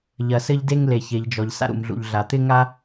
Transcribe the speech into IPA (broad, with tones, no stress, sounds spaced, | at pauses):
ʎ ɐ˩ s ɘ˧ ʎ d e˧ ŋ l e˩ ç e˩ ʎ d͡ʒ ɔ˩ ʎ s a̰˧ ɾ ṵ˩ m ɮ ṵ˩ ʎ ɮ a˩ t̪ ɪ˧ ŋ a˧